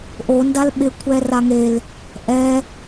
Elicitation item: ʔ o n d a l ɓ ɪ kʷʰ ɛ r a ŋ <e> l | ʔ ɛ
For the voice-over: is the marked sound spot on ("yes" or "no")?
yes